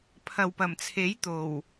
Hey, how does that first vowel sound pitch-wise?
low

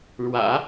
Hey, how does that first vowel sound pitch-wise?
low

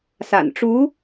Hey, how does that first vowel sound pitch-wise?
low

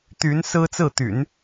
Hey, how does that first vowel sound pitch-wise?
rising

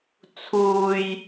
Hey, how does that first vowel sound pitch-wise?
high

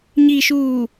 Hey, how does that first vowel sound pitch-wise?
low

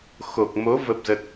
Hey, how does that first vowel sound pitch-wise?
low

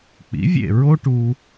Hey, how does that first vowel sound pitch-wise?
rising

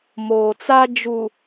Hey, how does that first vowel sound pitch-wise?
low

